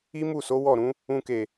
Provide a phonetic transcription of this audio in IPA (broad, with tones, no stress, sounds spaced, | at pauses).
i˦ m u˦˨ s o˨˦ w ɔ˦˨ ɾ ũ˨˦ | ũ˧ k e˨